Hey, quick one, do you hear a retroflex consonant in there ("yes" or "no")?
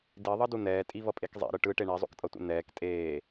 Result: yes